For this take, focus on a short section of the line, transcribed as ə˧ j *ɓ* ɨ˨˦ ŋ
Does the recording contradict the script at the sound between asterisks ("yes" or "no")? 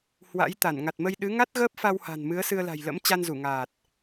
yes